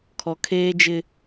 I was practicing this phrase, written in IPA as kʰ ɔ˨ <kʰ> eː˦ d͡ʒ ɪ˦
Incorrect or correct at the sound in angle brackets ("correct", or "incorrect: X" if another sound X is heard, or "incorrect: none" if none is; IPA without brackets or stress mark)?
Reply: correct